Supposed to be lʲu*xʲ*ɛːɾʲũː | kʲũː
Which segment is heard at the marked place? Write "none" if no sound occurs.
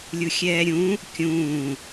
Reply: xʲ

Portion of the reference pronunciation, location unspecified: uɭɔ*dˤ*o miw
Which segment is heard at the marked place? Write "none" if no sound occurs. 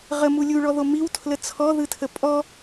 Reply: ð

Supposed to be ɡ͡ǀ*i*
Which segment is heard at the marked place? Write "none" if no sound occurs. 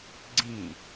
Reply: ĩ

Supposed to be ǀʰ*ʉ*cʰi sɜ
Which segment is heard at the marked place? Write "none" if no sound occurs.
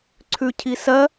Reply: ʉ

